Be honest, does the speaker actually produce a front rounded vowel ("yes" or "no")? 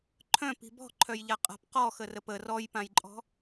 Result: yes